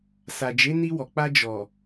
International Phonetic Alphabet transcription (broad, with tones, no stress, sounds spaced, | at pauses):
s a˨ d͡ʒ e˨˦ n i˧ w ɔ˨ k͡p a˧ d͡ʒ ɔ˨